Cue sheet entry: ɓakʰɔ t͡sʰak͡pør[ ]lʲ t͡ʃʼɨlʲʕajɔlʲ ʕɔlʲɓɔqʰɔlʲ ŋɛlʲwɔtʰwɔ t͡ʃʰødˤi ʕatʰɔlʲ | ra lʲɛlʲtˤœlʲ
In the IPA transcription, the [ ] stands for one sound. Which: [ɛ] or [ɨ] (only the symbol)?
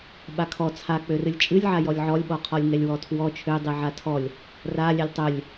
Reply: ɨ